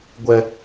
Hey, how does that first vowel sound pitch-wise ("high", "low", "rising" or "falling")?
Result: high